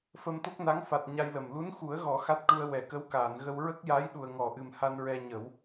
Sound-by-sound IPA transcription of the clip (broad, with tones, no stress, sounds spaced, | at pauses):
f ə˧ m t̪ o˦˥ k̚ n a˧˥ ŋ f a˨˩ t̚ ɲ a˧ j l ə˨˩ m l u˧˥ n x u˨˩˦ ə̯ ɣ ɔ˨˩˦ x a˦˥ t̚ ʈ u˧ ə̯ w ɛ˨˩˨ k ə˧˥ w k aː˨˩˨ n ɣ ə˧ w ɹ ə˦˥ k̚ j a˧˥ j ɗ u˨˩ ə̯ ŋ ɔ˨˩˨ ʔ ɨ˨˩ m h a˧ n ɹ ɛ˧ ɲ ə˨˩˦ w